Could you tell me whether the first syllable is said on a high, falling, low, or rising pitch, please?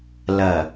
low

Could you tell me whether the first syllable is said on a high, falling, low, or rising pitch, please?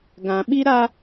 low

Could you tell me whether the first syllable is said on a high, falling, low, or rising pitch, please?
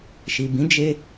low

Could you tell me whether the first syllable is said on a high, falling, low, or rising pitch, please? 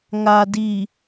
low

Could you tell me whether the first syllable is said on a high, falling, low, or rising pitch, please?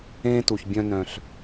high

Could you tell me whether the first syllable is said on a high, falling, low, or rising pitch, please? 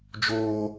high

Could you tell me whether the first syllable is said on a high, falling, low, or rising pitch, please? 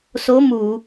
rising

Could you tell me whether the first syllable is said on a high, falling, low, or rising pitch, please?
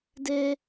high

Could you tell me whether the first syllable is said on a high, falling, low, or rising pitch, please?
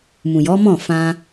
low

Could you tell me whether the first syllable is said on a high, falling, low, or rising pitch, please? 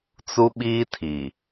high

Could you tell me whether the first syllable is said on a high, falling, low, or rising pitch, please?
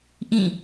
falling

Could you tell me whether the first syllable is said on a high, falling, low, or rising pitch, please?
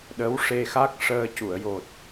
rising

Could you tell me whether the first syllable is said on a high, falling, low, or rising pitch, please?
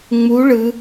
rising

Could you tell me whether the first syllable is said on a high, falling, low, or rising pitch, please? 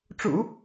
low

